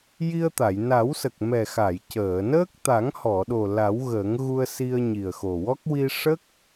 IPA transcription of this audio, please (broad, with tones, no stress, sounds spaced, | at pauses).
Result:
j i˧ ə̯ t̪ a˨˩˨ j n a˨˩˦ w s ə˨˩ k̚ m ɛ˨˩ x a˨˩˨ j c əː˨˩˨ n əː˦˥ k̚ t̪ a˨˩˦ ŋ h ɔ˨˩˨ ɗ o˨˩ l a˨˩˦ w ɣ əː˨˩˦ ŋ ɣ u˧ ə̯ s i˧ ə̯ ɲ i˨˩ ə̯ x o˨˩ w ɔ˦˥ k̚ w i˧ ʂ ə˦˥ k̚